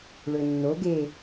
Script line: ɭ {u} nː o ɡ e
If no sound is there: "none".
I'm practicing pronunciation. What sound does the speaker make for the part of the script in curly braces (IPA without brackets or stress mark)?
ø